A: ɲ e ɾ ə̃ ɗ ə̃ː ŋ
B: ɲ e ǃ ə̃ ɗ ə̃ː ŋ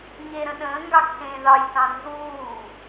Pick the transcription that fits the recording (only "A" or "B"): A